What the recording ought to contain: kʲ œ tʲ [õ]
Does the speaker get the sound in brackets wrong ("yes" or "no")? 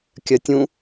yes